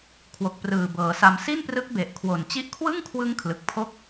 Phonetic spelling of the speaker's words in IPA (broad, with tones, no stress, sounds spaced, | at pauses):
kʰ w o˨˩ k̚ p r ɯː˨˩ b ɤː˩˦ s a˧ m s i˥˩ n p r ɯ˦˥ k̚ b e˨˩ ʔ kʰ w o˨˩ n t͡ɕ i˦˥ ʔ kʰ w ɯ˥˩ ŋ kʰ w ɯ˦˥ ŋ kʰ l ɯ˨˩ k̚ pʰ o˥˩ k̚